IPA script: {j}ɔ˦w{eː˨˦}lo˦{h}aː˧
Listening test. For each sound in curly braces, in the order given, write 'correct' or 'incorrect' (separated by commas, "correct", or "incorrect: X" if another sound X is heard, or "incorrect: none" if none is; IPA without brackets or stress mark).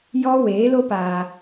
correct, correct, incorrect: p